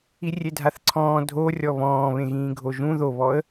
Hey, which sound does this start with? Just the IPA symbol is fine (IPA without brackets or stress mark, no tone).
i